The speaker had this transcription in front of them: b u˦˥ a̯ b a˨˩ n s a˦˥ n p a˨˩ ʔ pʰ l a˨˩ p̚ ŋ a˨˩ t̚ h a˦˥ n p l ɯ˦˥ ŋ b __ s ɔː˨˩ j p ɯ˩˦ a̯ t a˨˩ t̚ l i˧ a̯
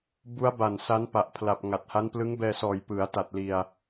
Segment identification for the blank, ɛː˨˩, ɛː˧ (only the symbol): ɛː˧